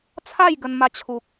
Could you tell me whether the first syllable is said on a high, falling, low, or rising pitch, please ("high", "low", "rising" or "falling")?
falling